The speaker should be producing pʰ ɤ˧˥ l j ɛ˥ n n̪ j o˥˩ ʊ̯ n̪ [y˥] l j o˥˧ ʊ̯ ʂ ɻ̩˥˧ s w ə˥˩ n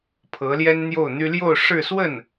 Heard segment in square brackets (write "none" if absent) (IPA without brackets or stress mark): y˥